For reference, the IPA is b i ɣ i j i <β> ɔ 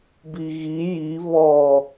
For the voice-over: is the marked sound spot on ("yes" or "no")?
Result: yes